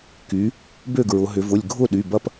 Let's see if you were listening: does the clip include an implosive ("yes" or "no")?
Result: yes